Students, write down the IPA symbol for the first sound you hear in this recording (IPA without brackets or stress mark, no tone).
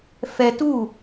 f